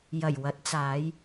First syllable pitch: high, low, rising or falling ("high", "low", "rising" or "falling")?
low